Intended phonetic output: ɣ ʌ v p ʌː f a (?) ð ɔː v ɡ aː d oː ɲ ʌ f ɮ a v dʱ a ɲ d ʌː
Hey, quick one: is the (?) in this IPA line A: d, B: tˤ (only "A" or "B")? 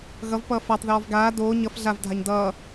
B